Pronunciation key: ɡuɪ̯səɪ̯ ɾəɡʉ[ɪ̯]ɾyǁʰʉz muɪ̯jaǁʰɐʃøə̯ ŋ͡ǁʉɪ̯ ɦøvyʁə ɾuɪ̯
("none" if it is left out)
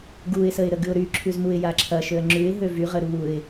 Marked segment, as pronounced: ʊ̯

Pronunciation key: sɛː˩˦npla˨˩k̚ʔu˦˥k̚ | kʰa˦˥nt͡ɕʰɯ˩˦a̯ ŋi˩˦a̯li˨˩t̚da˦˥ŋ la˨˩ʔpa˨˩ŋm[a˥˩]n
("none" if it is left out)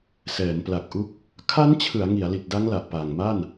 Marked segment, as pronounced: a˥˩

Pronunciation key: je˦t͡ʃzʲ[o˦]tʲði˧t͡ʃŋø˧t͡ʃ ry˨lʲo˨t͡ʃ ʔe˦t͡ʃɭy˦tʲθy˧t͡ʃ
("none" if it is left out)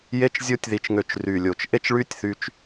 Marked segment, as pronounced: o˦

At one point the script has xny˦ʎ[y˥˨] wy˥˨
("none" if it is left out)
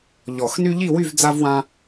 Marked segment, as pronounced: i˥˨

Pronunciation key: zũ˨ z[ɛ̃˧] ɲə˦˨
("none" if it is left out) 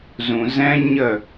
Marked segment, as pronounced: ɛ̃˧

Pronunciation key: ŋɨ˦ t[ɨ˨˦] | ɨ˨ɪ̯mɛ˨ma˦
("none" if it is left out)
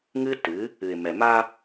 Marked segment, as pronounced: ɨ˨˦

